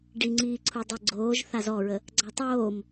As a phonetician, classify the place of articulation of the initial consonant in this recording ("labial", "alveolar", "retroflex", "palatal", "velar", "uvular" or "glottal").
retroflex